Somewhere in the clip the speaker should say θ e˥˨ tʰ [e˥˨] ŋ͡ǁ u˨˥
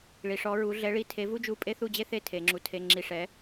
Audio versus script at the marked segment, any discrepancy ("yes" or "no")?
yes